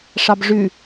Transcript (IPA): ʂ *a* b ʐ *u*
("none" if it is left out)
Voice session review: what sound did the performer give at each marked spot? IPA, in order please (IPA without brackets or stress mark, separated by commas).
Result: ɑ, ʉ